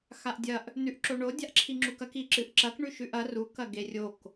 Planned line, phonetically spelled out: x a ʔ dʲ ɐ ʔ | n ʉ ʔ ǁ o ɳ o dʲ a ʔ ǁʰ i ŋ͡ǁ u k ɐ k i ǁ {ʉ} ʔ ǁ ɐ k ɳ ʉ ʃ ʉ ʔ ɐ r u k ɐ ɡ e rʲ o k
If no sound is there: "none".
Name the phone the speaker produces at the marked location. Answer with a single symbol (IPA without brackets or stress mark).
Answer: ɨ